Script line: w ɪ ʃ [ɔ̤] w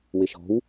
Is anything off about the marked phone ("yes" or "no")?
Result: no